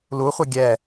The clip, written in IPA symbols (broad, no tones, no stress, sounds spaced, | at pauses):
l u χʷ ʌ ɡʲ ɛ